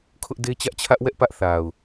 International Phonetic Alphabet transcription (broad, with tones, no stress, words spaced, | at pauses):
kʰʊ˦ʔde˦ t͡ɕä˦ʔt͡ɕʰä˦ʔ wɛ˦ʔpä˦ʔ θa˨ʊ̯